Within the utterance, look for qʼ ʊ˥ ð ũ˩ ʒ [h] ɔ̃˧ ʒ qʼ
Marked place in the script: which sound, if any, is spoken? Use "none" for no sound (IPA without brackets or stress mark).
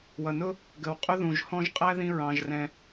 h